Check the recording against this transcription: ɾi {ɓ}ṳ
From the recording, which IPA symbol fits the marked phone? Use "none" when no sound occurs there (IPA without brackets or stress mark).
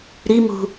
m